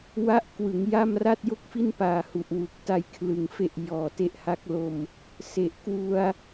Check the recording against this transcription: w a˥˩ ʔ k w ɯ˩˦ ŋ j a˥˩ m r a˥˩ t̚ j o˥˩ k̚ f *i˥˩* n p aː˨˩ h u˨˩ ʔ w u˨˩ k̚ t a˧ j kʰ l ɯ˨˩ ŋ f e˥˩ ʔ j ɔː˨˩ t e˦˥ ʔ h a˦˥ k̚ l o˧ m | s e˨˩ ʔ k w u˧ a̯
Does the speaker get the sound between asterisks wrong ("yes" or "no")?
no